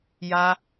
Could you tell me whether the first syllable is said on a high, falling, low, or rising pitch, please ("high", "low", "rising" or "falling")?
high